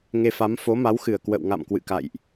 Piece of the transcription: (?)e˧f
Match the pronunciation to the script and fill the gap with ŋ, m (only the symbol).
ŋ